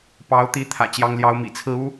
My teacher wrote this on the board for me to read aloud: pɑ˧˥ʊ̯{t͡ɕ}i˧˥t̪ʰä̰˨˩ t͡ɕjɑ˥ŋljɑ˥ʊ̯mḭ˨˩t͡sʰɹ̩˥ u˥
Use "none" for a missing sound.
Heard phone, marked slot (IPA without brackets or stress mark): t̪